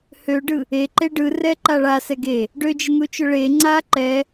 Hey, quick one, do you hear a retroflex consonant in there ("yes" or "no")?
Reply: yes